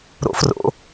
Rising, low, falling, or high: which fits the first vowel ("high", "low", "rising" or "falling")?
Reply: high